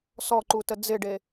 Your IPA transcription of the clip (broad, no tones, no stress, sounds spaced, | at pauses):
s ɔ ǃ u t ə d͡z ɪ ɖ e